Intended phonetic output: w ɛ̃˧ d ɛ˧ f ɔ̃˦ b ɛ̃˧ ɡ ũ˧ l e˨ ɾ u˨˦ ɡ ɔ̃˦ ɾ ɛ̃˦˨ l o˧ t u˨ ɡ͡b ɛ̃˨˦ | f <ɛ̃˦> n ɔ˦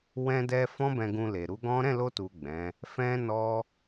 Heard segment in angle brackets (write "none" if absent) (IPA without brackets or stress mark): ɛ̃˦